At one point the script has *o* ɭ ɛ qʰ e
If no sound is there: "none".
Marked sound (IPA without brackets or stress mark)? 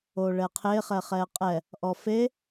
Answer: o